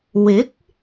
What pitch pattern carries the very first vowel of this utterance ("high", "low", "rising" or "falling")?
rising